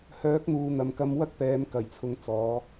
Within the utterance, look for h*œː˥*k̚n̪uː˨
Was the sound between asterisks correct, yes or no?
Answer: no